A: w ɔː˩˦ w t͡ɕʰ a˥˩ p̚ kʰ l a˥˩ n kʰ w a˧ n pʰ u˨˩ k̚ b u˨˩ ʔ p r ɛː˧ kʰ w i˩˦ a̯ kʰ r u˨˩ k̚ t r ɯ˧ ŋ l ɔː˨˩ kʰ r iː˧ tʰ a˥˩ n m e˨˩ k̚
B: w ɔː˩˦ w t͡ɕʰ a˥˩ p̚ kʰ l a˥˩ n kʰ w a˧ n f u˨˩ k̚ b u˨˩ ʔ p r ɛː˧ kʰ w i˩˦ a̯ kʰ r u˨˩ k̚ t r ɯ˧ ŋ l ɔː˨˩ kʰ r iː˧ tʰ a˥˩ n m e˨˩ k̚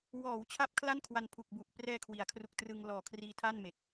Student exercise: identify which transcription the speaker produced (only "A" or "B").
A